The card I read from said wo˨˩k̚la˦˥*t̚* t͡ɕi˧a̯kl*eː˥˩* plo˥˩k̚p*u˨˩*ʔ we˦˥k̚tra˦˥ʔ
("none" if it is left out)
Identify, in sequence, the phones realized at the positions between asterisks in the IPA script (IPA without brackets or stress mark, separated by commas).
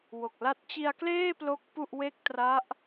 t̚, eː˥˩, u˥˩